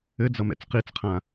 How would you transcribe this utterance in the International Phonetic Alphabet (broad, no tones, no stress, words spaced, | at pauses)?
ɘd͡zʌ mɛ̰t͡sqit͡sqʰã